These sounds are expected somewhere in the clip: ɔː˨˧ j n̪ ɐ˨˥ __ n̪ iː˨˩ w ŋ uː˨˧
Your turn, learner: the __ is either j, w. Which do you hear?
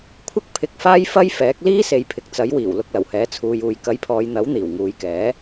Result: w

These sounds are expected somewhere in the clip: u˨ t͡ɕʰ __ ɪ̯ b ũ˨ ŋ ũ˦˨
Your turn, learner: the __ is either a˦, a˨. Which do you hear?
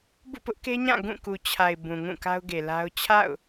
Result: a˨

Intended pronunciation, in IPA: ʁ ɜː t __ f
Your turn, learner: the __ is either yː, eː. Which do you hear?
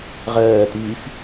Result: yː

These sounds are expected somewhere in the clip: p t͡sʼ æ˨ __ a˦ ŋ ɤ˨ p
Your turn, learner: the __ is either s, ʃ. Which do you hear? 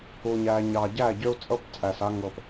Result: s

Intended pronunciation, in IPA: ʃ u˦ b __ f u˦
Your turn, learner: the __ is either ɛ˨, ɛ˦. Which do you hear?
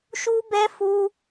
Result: ɛ˦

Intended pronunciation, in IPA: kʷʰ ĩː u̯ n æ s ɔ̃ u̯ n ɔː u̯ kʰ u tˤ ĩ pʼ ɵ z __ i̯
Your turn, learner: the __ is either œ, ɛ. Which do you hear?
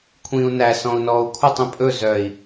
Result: œ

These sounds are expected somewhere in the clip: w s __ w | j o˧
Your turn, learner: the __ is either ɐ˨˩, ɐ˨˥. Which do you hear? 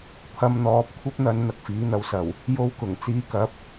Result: ɐ˨˩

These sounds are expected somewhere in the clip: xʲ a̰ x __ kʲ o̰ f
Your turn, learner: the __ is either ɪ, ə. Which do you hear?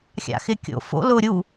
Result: ɪ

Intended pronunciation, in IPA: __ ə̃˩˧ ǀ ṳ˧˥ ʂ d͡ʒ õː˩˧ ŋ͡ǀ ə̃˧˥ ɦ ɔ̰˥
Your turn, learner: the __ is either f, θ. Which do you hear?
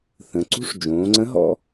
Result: θ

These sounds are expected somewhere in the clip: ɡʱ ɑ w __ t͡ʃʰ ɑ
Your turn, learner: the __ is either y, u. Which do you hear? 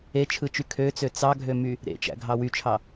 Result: y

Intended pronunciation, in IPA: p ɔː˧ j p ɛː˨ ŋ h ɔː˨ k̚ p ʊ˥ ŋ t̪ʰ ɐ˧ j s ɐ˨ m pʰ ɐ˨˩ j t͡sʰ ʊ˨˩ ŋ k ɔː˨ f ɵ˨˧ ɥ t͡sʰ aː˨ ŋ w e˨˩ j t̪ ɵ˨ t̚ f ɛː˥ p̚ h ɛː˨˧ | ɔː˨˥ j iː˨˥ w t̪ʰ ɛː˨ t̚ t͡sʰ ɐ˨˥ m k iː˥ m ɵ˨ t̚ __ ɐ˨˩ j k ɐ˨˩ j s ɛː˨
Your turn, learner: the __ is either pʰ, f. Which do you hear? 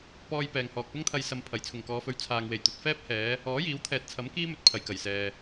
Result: pʰ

